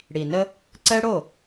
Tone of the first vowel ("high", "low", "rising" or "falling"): low